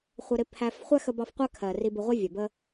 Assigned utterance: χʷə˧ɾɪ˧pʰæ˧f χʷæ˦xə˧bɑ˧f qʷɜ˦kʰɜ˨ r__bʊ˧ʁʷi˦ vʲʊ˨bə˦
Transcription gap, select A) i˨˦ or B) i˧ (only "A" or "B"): B